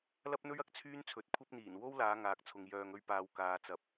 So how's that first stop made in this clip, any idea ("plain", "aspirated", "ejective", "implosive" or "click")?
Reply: plain